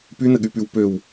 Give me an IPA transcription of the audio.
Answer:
p y n ə ɠ y p y w p ø w

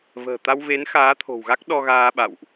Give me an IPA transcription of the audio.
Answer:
v ə̤ː˨˩ t̪ a˧ w v e˨˦ n x aː˨˦ t̪ʰ o̤˨˩ w ɣ a˦˥ k̚ ɗ ɔ˧ ɣ aː˧ ɓ a̰˧˨ w ʔ

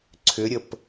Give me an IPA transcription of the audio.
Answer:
ǀʰ ʏ ɾʲ ə p

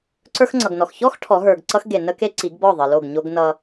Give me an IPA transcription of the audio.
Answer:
ǀ ə˞˦ x ŋ͡ǀ ʌ˨ ɡ n ɔ˨ x ç ɔ˦ x ʈʰ ɔ˨˦ ɦ ə˞˨ ɡ ǀ ʌ˦ x ɡ e˨ n ə˦ k e˦ ǀ i˨˦ ɡ b ɔ˦˨ ðˤ ə˨ l o˦˨ ɡ ɲ o˦ ɡ n ʌ˦

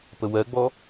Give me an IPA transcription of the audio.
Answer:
p ə w ɜ ɡ͡b ɔ

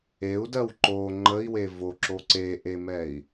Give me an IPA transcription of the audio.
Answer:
e u̯ d ɜ w ǃ o ŋ͡ǃ ə i̯ w e v o ǁ o ǀ e ʔ e m ɛ i̯

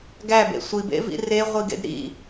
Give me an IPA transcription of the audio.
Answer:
ɡ æ b ḛ sʷ i b ḛ v ḭ r e ʁʷ i ɡ ḛ d ɾ ḭ

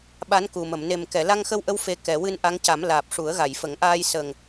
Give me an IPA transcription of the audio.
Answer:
ɓ a˧˥ n k u˨˩ m ə˨˩˨ m n e˨˩ m k ɛ˨˩˨ l a˧ ŋ x ə˧ w ʔ ə˧ w f e˨˩ k ɛ˨˩˨ w ɨ˧ n ʔ a˧˥ ŋ c a˨˩˦ m l aː˨˩ p̚ ʂ u˨˩˦ ə̯ ɣ a˨˩˨ j f ə˨˩˦ ŋ ʔ aː˧ j s ə˨˩ ŋ

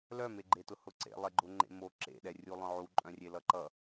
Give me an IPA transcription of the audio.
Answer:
l œ m e ɡ͡ǃ e t ʊ h ʊ ǀ ḛ lˠ e ɡ͡ǃ ʊ ŋ͡ǃ ḛ m o ǁ ḛ ɗ ɛ rʲ u lˠ œ̃ ʕ u ǃʼ œ̃ rʲ e l ʌ ǃ ʌ

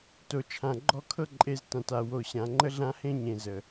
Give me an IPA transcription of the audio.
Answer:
t o˨ t͡ʃʰ ã˨ ɡ͡ǃ ɔ˦˨ kʰ ɤ˦ ǃʼ e˨˦ z t ã˨ t a˨ w o˨ ɕ ã˨ ŋ͡ǃ ə˦ ɮ ã˦ h ẽ˦ ɲ ẽ˨ z ə˨

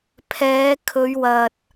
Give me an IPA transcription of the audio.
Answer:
pʰ ɛː˨˧ kʰ ɵ˨˧ ɥ w ɐ˨ t̚

